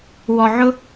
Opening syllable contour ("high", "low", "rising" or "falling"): low